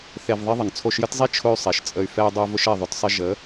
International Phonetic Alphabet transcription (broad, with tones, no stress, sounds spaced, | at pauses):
θ e˨ v ðˤ i˦ ðˤ ə˨ ŋ t͡sʰ o˧ ʃ j ə˦ t zˤ i˦ t͡ʃʰ ʊ˦ y̯ sˤ e˨ ʃ t͡sʼ ə˧ y̯ f ɛ˧ y̯ dˤ ə˧ u̯ v ʊ˧ ʃ e˨ ðˤ ʊ˨ t sˤ ɪ˧ ʒ ə˨˦